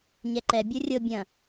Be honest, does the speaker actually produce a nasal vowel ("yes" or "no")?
yes